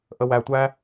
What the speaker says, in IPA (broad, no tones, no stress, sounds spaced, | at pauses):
ʔ ə w æ tʷ æ